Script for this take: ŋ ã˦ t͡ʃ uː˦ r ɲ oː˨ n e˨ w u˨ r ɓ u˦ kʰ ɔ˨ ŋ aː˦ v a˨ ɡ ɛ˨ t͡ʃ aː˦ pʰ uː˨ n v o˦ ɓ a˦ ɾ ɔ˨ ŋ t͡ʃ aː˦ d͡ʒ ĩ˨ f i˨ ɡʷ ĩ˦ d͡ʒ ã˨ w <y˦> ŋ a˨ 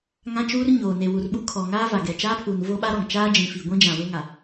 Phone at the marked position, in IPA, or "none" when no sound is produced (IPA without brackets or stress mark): e˦